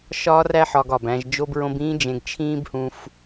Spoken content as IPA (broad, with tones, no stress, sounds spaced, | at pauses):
ʃ ɒː˥ r æ˥ ħ ɒ˧ ɡ ɒː˩ b æ̃˧ ʒ d͡ʒ o˥ b ɹ õ˥ b ĩː˥ d͡ʒ ẽ˧ ɡ t͡ʃʰ ĩː˥ b h ũ˧ f